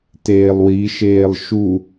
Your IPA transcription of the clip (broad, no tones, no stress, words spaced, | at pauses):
teːlˠwiʃeːlˠ ʃu